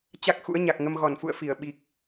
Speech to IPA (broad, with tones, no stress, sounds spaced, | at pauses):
t͡ɕ a˦˥ k̚ x ṵ˧˥ ə̯ ɲ a˨˩ k̚ ŋ ə˧ m ɣ ɔ˧˩ n f ṵ˧˨ ə̯ f i˧˩ ə̯ ɓ i˨˩ k̚